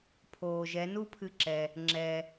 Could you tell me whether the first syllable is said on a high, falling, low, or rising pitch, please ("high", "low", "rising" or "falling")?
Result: low